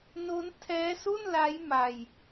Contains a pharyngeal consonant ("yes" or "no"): no